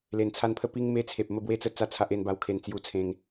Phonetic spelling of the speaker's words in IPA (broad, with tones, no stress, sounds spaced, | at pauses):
l e˨˩ n t͡sʰ a˧ n pʰ ə˧ p i˧ ŋ m e˧ t͡sʰ e˨ p̚ m ə˥˧ b w e˥˧ t͡s ə˥˧ t͡s a˥˧ t͡sʰ a˦ ʔ e˧ n b a˧ w kʰ e˨˩ n t͡s j u˧ t͡sʰ ẽ˧ ŋ